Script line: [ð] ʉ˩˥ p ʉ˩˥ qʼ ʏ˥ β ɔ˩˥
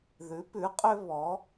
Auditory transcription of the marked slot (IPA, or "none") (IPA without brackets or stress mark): ð